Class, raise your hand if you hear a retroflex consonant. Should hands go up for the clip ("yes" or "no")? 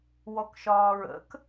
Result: no